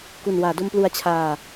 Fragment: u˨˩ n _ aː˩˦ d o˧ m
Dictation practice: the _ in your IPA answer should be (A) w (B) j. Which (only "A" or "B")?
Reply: A